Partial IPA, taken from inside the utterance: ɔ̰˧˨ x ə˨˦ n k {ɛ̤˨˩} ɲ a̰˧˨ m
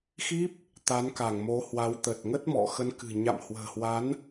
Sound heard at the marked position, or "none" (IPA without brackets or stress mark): ɨ̤˨˩